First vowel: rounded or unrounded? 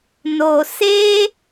rounded